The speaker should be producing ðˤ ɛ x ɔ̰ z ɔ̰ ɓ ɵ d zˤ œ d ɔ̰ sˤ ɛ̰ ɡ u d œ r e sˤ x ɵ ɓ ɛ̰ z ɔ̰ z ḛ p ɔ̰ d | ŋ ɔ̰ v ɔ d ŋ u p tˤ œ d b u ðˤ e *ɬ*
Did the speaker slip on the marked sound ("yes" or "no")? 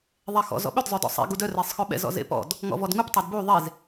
yes